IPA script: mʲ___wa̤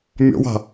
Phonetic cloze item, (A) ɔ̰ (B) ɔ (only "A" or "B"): A